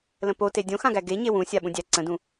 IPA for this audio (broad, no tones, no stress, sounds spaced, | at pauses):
l ə̃ p o t e dʲ õ x ã ɡ æ ɡ e ɲ e w ũ sʲ a ɓ ũ dʲ æ ǀ ə̃ d ũ